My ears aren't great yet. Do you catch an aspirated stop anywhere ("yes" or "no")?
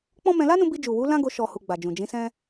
no